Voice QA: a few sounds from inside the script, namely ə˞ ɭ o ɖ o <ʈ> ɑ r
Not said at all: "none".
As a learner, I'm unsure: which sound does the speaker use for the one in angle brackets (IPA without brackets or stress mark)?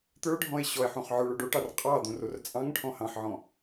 ʈ